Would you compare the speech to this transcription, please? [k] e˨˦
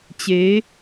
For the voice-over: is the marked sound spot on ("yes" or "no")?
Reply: no